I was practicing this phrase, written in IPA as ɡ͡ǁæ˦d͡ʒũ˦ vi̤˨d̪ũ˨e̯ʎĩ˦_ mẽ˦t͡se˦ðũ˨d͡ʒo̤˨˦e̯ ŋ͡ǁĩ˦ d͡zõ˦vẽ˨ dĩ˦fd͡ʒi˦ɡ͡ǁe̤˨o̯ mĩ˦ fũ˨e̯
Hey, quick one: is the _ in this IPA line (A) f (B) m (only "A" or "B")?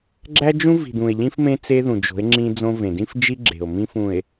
A